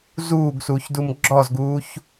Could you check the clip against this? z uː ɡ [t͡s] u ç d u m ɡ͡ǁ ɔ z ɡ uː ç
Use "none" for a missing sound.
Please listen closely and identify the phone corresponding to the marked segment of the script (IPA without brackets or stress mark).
s